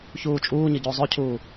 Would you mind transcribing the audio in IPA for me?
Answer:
çuːt͡ʃʼuːɲə ɟozˤɵcʰuː

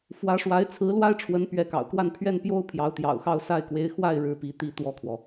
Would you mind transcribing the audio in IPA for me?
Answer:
fwä˧˥ʂwa˧˥ɪ̯ t͡sʰɹ̩˧˥lwa˥ɪ̯ʈ͡ʂʰwə˧˥n pɥɛ˧˥kɑ̰˨˩ʊ̯kwa˥˧n pʰɥɛ˥˩npjo˥ʊ̯ pʰjɑ˧˥ʊ̯t̪jɑ̰˨˩ʊ̯xɑ˥˧ʊ̯ sa˥˩ɪ̯kwe˧˥ɪ̯ xwa˥˩ɪ̯ ɻɻ̩˥pi˧˥t̪i˥˧ t̪wɔ˥˩kʰwɔ˩

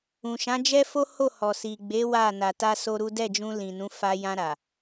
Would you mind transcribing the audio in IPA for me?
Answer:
ũ˨ʃã˨˦d͡ʒɛ˦fo˦ ho˦˨hɔ˨si˨ɡ͡be˨˦ wa˦˨ na˨ta˧ so˦ɾu˦ dɛ˦˨d͡ʒũ˧ lĩ˨nũ˨˦ fa˧jã˧ɾa˨

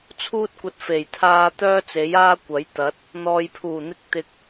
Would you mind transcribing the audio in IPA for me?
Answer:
t͡sʰuː˥t̚kʷɐ˧t̚ fe˨˩jt̪ʰaː˧ t̪œː˥t͡se˨˥jaː˥kʷɐ˨˥j t̪ɐ˨˥t̚ | n̪ɔː˨jpʰuː˨˩n̪ɪ˧k̚ t̪ɪ˨k̚

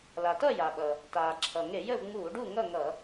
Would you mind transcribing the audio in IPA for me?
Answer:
la˩tʌ˥˨ ja˩ɓʌ˩ | taː˩ǁʰʌ˩ŋe˧˩˧jə˥˨v ŋ͡muː˧˩˧ɖu˥˨ ŋʌ˥˨ŋʌ˧˩˧

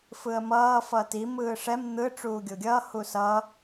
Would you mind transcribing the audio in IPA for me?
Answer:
fɯə̯mʌː fʌti mɯːʂɛm n̪ɯ ʈ͡ʂuːɡʲoɡʲʌː husʌ

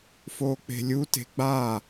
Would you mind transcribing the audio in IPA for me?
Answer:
foːk͡pe̤lʲu te̤ɡ͡ba

